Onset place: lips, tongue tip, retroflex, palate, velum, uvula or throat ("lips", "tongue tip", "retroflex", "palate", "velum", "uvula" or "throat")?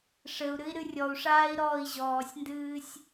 retroflex